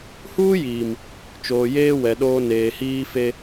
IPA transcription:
h uː˦ j iː˨ m | t͡ʃ oː˨ j eː˦ w ɛ˨ ɗ oː˦ n eː˨ h iː˦ f e˦

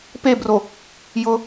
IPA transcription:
p e b r o | j ʊ

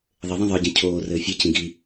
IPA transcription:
ðˤ ɘ ðˤ ĩ ðˤ ə˞ ɟ ĩ cʰ oː r ɘː fʲ ɘ c ĩ ɡ i

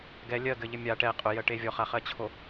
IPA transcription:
ɡ ɛ lʲ ɜ ɡ ɘ ʎ ɘ mʲ a ʈ ɛ qʼ ʊ j ɜ ʈ e vʲ ɔ χ a χ ɜ t͡ɕʰ o

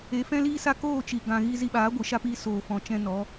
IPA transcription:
e˨˦ f ɛ̃˦ l iː˦ s a˦ k oː˦˨ t͡ʃ i˨ ɡ ã˨ ɣ i˧ z i˧ ɓ aː˨˦ ɡʷ ɨ˨ ʃ a˦ p iː˧ s oː˨ f ɔ̃˨ t͡ʃ ɛ̃˧ n ɔ˨˦

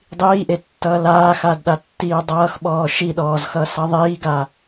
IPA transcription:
dˤ iː ʔ e tː ʌː l aː x a d ɗ a tː iː dˤ ʌː x ɓ ɔː ʃ i ɗ ɔː z x ʌː s ʌ ðˤ iː ɡ a

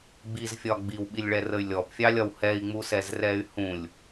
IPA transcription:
ɡ͡b i z fʲ ɒ ɡ͡b i w ɓ i lʲ ɭ ɛ r ə y̯ lʲ ɔ p fʲ ɑ lʲ ɒ w h ɛ i̯ ŋ͡m u s ɛ z r ɛ y̯ h ũ lʲ

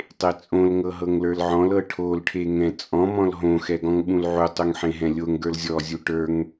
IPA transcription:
tˤ e t͡sʼ õ l ŋ ɤ ɦ ɤ ŋ l ə˞ l ʕ ɔ̃ l ɤ ʈʰ o l ʈʰ e ŋ ɛ̃ t͡sʼ ɔ̃ m ɔ̃ l ɦ õ x ɛ ɡ ɔ̃ ŋ ɓ ũ l ʕ u tˤ u ŋ ħ ẽ ɦ ɛ̃ lʲ o ŋ ɡ ə˞ l zʲ ɔ zʲ u ʈ ə˞ ŋ

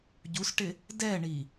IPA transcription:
ɟ u s ʈ ɪ | d ɛ ɳ i

